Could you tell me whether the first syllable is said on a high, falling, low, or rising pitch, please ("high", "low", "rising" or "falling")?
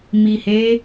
low